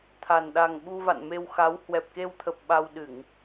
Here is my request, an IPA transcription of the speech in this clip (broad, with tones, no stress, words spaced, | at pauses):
t̪ʰa˨˩n ɗa˨˩ŋɓu˧ va̰˧˨nme˧w xa˨˦w hwɛ˨˩p̚ke˧wt̪ʰə˨˩p̚ ɓa˧wɗɨ˧˩˨ŋ